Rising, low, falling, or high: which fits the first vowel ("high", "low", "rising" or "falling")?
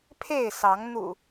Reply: falling